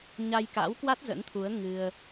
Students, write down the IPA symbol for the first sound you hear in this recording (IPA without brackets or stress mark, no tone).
ɲ